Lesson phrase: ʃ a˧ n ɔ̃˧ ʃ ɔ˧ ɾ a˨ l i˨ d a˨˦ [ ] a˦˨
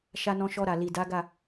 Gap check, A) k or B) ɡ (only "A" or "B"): B